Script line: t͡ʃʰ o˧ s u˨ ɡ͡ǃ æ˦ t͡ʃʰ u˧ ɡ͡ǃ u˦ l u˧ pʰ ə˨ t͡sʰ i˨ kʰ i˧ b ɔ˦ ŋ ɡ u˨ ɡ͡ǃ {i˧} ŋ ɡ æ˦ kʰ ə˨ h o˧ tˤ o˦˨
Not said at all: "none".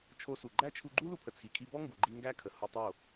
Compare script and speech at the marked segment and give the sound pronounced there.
i˧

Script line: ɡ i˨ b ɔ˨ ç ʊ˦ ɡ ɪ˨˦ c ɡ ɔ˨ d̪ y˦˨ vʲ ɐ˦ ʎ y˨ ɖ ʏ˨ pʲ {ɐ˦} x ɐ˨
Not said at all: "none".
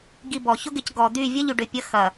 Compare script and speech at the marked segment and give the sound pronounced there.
ɐ˨˦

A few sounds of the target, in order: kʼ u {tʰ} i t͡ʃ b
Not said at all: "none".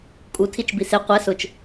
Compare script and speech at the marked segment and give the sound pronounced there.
tʰ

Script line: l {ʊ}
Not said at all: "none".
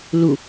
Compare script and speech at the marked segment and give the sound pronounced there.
u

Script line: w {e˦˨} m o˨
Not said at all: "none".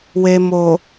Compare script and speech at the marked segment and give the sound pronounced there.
e˨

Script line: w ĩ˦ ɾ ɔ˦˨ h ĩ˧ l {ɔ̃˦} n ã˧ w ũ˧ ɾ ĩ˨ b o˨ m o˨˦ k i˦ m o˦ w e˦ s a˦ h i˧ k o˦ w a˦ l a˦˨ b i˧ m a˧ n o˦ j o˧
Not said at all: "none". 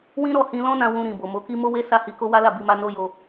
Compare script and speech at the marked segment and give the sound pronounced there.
ɔ̃˦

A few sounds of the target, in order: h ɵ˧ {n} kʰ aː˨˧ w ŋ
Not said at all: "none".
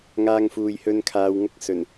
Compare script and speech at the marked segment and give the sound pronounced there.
n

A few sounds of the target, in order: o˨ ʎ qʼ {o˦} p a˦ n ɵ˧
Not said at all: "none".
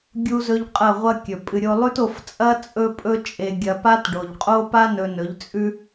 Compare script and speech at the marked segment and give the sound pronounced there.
o˦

